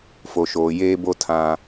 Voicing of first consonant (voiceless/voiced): voiceless